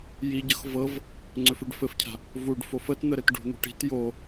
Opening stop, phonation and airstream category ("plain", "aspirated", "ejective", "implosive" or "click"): plain